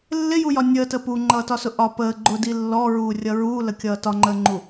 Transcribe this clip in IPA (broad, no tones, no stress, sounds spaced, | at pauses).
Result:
lː ɪ j u j ɒ nʲ əː t ə p u ŋ͡ǃ ʌː t ɒ s ʊ ʔ ɒ p əː ɡ͡ǃ ʊ d i lː ɔ ɹ uː rʲ ʌ ɹ uː l ə kʲ ʌː t ɒ ŋ͡ǃ əː ŋ͡ǃ u